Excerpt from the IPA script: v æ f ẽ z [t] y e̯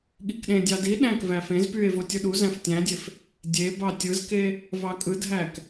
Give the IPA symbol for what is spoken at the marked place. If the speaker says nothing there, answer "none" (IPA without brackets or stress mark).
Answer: p